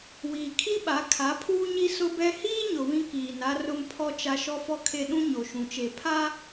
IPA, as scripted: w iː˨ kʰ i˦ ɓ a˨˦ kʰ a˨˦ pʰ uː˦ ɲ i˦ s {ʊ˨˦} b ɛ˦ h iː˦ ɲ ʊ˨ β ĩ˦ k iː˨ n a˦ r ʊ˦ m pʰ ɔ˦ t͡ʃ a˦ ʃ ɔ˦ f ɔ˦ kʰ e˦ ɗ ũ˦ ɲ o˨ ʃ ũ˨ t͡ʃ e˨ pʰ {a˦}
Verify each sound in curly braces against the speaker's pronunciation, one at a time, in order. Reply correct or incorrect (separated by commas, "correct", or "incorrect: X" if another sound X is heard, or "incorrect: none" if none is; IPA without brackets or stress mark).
incorrect: ʊ˦, correct